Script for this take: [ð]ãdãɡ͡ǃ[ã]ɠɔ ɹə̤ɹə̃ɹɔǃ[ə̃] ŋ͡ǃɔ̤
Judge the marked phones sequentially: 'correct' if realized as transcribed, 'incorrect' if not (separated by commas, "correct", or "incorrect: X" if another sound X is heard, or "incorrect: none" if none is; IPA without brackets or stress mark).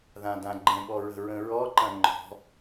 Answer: correct, incorrect: ə̃, incorrect: ɐ̃